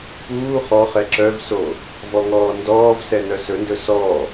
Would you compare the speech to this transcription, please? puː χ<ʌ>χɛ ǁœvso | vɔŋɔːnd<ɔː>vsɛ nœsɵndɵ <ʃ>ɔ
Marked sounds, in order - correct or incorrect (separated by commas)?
incorrect, correct, incorrect